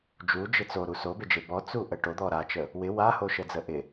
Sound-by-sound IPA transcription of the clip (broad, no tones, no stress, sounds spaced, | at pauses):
d͡ʒ u d͡ʒ ɪ t͡s o ɾ u s o b e d͡ʒ e b ɔ t͡s u ʔ ə ʈ o d̪ ɔ ɾ a t͡ʃ ə | w ɪ w a h o ʃ ə d͡z ə ʔ ɪ